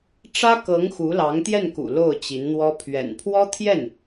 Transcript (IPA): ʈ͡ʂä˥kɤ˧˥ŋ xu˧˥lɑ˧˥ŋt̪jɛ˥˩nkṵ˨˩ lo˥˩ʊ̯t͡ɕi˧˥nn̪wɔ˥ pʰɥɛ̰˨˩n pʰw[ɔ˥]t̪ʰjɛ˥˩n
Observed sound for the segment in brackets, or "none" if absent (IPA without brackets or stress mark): ɔ˥